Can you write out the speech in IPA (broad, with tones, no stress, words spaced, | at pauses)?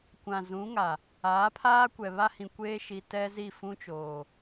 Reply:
kʷã˨zũ˨˦ŋa˨ | aː˨˦pʰaː˦ kʷɛ˨ βa˦hĩ˨kʷeː˦ʃi˨ tɛ˦zi˦˨ fũ˦t͡ʃoː˨